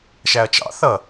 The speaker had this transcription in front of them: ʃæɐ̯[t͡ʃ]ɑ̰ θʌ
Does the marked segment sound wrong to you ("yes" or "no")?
no